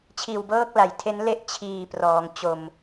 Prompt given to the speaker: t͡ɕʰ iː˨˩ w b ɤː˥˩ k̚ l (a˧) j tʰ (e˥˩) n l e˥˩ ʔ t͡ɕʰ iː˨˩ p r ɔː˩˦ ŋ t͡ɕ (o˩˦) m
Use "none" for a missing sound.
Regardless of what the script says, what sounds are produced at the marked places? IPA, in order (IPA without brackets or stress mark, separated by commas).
a˩˦, e˦˥, o˧